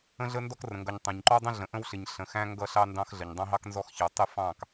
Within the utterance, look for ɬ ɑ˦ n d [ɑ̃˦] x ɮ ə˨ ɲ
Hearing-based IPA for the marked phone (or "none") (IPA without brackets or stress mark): ɑ̃˦